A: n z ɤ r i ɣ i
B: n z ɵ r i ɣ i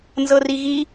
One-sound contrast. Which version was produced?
A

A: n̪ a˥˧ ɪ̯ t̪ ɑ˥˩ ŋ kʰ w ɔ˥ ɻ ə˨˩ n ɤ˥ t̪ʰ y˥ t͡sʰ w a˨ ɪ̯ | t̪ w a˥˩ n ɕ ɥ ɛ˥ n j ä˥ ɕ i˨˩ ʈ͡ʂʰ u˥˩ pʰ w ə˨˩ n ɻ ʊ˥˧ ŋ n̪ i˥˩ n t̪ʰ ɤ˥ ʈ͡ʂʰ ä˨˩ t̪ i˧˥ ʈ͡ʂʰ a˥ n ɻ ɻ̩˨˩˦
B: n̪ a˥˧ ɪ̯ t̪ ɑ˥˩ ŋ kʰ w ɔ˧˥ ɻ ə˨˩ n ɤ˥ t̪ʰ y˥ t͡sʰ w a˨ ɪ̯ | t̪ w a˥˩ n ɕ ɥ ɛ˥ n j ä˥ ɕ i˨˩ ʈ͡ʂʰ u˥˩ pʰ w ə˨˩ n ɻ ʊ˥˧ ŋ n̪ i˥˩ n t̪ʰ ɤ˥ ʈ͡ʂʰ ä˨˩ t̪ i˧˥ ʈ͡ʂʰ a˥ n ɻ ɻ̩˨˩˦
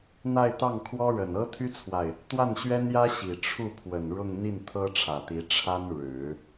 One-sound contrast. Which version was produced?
A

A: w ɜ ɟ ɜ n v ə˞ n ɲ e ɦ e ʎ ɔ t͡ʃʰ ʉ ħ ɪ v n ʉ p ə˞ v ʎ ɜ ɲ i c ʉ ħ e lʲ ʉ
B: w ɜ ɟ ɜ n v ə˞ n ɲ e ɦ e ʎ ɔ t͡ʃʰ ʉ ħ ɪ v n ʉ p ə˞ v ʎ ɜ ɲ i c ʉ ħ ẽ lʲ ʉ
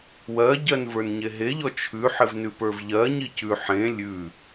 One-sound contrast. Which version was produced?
B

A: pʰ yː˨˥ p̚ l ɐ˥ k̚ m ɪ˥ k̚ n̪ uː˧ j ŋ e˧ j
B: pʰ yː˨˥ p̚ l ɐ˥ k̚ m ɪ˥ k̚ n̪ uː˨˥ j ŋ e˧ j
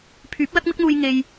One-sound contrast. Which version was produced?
A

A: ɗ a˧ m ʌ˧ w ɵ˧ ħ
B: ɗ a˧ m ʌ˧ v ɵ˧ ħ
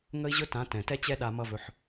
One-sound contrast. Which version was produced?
B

